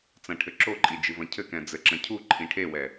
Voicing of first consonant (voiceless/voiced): voiceless